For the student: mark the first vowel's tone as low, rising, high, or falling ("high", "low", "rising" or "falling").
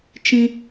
high